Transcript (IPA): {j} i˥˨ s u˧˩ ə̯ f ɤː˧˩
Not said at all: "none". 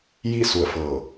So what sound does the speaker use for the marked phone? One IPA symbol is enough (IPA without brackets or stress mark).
j